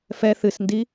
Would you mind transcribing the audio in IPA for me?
fɛ θɨsndi

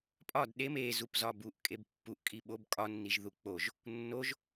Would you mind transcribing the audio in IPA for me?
pʼɒd ɗem e zupzɒbuʔ kʼebpːuʔ kʼiɓob kʼɒ nːiʒðuk͡poʒ | nːoʒ

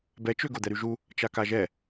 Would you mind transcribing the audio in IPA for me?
bɛt͡ʃø ɡod̪ɛɾyʒu | t͡ʃakaʒɛ

